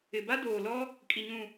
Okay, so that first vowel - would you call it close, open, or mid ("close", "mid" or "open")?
close